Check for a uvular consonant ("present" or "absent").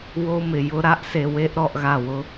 absent